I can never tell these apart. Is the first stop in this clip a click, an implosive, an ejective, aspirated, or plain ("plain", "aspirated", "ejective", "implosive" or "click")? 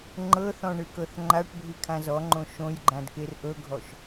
click